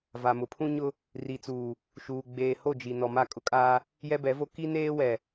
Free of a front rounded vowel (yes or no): yes